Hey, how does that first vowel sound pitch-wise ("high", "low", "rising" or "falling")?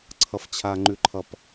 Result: high